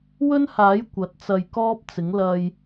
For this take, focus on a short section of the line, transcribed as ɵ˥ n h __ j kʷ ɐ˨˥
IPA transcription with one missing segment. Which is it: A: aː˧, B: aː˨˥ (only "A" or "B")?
B